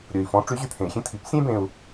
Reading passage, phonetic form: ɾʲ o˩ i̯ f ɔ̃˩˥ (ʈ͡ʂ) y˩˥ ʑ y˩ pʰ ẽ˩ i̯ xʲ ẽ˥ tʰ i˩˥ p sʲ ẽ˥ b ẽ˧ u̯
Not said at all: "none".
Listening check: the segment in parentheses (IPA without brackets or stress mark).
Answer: ʈ͡ʂ